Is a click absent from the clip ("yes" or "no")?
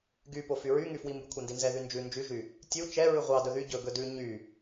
yes